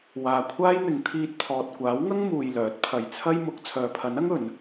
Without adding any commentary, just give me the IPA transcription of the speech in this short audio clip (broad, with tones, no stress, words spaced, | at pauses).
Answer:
waː˨kʷʰaː˥jn̪ɪ˨˧ŋ t̪ʰiː˧t̚pʰɔː˨t̚ kʷaː˨˥wŋɐ˥ŋ muː˧jlœː˨˥t̚pʰɐ˧j t͡sʰɐ˥jmʊ˨˥k̚ t͡sʰœː˨pʰɐ˨˥nɐ˥ŋ ɵ˨˥n